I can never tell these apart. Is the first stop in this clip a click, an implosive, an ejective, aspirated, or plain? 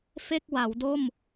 plain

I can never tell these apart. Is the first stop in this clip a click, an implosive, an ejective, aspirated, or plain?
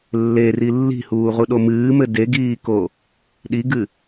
implosive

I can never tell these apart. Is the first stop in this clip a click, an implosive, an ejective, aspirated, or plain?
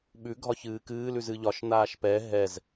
implosive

